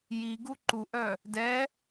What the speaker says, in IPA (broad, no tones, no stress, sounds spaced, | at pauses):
j i ɡ u ǃ u ʔ œ | d ɛ